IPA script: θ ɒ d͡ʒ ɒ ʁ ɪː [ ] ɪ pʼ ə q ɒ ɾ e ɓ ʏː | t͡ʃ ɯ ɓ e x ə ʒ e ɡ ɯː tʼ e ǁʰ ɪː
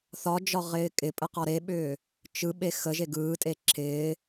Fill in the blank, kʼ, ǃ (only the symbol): kʼ